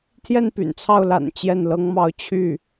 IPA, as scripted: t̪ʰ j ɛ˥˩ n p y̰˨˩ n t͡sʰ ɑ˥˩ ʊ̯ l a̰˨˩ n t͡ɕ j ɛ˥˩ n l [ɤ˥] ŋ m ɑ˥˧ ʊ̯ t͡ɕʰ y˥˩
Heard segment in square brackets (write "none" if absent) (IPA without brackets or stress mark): ɤ˥